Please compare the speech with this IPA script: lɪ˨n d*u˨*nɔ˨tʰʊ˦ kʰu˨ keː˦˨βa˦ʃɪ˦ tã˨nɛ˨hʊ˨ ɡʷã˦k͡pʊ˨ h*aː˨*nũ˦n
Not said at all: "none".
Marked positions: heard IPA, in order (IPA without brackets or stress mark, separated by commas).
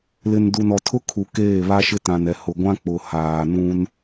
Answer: u˨, aː˨